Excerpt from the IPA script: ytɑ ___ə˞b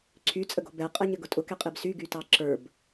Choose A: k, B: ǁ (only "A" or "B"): B